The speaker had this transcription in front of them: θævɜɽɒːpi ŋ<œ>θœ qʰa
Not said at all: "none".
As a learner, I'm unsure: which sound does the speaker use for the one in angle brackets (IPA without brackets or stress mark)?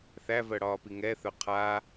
ɛ